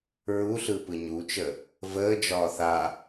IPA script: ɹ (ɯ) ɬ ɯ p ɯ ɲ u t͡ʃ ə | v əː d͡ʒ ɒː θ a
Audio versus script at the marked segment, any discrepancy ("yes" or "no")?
yes